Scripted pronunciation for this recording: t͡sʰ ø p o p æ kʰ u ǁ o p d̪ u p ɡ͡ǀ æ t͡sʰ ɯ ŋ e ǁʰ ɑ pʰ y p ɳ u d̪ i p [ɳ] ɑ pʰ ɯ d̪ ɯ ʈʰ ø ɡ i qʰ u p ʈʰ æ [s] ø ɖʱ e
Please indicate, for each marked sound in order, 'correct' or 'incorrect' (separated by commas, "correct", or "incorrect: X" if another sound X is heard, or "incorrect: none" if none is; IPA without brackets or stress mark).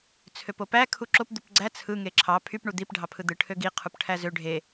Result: incorrect: ɖʱ, incorrect: z